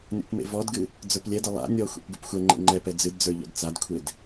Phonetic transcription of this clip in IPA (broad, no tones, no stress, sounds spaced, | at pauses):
nʲ ɔ̰ p m ḛ v ɔ d ɡ ɨ | d͡z ə˞ p lʲ ɛ d ə lˠ a̰ nʲ ɔ xʷ ḛ p ɡ ʉ p xʷ ɛ ŋ͡ǃ ḛ ŋ͡ǃ ɛ p ɛ d͡z ɨ d d͡z ə˞ ʎ ɔ̰ d t͡s a d kʷʰ e d